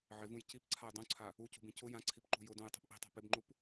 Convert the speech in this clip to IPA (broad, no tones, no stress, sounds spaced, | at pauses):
ʕ ɪ v ũ j c i p ǀʰ a j dˤ ũ ǀʰ a | u c ṳ b ĩ c ʊ j ã ǀʰ i p ǃ ṳ j ʊ d ũ j tˤ ṳ p ʔ i̤ tˤ a̤ p ɪ b ŋ͡ǃ u p